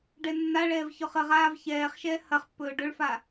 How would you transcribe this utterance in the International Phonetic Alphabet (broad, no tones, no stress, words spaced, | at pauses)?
ɖɛnːaɭɛːv çɔχəʁaːv çɛːχʃɛː hɐχpːɵː ɖɵɭfa